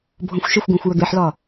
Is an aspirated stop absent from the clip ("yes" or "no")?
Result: yes